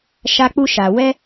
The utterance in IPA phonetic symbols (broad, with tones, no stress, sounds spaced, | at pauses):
ʃ a˧ k͡p u˧ ʃ a˨ w ɛ˧